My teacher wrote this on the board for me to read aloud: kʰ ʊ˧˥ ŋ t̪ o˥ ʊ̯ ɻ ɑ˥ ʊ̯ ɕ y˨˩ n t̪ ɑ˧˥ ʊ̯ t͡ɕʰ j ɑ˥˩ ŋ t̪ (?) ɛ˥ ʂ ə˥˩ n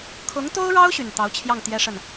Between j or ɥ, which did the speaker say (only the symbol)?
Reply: j